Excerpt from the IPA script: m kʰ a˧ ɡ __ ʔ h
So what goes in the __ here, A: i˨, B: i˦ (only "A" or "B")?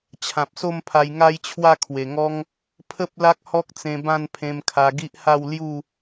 B